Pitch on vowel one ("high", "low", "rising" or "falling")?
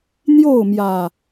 falling